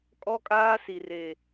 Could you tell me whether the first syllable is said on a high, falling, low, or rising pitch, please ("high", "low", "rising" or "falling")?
high